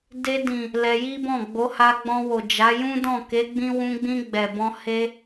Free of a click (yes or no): yes